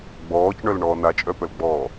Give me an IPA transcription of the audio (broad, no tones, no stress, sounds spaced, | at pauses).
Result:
ɡ͡b ɔː c ɳ œ l ɳ ɔː n a t͡ʃʼ œ p œ l ɡ͡b ɔː